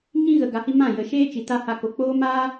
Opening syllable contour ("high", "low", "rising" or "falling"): high